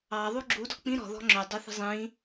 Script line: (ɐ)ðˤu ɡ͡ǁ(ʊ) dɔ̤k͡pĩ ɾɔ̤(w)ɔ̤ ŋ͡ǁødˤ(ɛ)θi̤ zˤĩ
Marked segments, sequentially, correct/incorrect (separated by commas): incorrect, incorrect, incorrect, incorrect